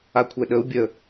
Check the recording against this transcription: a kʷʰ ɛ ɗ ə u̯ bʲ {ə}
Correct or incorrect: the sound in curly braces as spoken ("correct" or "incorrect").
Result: correct